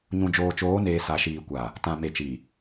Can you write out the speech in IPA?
ɲ ũ˨ d͡ʒ oː˨ t͡ʃ oː˨˦ n eː˨ s a˨ ʃ iː˨ kʷ a˨ | t ã˨ m e˨ t͡ʃ i˨

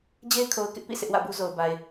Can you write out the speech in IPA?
d͡ʑ e˦ ɪ̯ kʰ o˨ ʊ̯ k ɪ˦ ʔ p ḭ˦˨ sʰ ɪ˦ ʔ w ä̰˦˨ b u˦ z o˨ ʊ̯ b a˨ ɪ̯

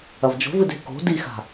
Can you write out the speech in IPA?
ɐ v d͡ʒ o̤ v ɨ d e̤ k o̤ d i x a̤

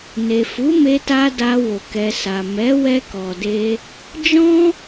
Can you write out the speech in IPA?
n e˨ f u˨˦ m e˧ t a˧ d a˧ w o˨ k ɛ˨ s a˨ m ɛ˨˦ w ɛ˧ k ɔ˨ d e˧ | d͡ʒ ɔ̃˦

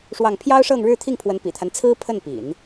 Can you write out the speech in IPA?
ʂ w ɑ˥˩ ŋ pʰ j ɑ˥ ʊ̯ ʂ ɤ˥˧ ŋ ɻ ɻ̩˥˧ t̪ʰ i˥˩ ŋ pʰ w ə˧˥ n p ḭ˨˩ t̪ʰ a˦ n t͡sʰ ɹ̩˥ pʰ ə˥˩ n p ḭ˨˩˦ n

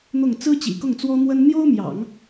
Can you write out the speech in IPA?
n̪ ʊ˥˩ ŋ t͡s ɹ̩˥ t͡ɕ ḭ˨˩ k ʊ˥˩ ŋ t͡s w ɔ˥ n̪ w ə˥ n n̪ j o˥ ʊ̯ m j ɑ̰˨˩˦ ŋ

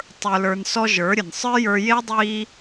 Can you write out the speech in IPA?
tˤ ə˞˧ l ə˞˧ n s ɔ˦ ʒ ə˞˨˦ ɾʲ ə˨ n sˤ ə˞˦ j ə˞˧ j e˦ dˤ iː˧

